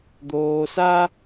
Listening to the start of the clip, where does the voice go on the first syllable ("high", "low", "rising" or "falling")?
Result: low